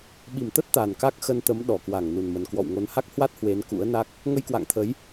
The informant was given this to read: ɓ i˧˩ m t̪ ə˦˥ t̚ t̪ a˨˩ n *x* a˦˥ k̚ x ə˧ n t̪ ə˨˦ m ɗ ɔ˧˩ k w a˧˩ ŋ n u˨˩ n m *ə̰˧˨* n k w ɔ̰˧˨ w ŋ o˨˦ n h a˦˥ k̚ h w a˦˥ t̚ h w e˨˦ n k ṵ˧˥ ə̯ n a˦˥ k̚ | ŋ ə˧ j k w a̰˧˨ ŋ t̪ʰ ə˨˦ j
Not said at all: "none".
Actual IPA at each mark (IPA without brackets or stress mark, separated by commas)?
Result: k, ə˨˩